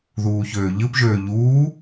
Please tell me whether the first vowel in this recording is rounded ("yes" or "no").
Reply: yes